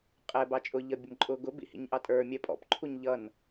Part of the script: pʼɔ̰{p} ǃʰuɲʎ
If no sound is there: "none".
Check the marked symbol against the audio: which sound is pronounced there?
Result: p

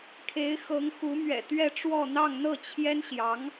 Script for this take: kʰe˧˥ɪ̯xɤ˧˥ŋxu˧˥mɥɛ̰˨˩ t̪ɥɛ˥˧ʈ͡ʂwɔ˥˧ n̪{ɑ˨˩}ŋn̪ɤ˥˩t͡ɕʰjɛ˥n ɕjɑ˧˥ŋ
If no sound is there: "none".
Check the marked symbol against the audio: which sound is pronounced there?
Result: ɑ˥˧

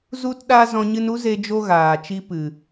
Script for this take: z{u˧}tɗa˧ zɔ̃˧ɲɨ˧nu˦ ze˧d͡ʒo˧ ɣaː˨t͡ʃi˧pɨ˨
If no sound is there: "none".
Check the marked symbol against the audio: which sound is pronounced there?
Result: u˧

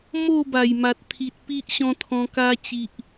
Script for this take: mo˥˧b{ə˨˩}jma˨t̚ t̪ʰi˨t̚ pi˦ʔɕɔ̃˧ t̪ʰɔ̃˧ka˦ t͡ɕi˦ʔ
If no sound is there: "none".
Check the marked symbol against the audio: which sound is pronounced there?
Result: a˨˩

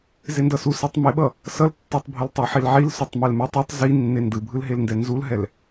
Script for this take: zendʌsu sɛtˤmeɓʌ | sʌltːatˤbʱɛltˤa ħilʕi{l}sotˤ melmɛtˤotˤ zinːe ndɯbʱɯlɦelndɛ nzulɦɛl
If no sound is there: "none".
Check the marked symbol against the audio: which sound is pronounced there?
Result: l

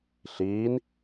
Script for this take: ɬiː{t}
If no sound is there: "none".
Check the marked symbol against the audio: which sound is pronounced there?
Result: n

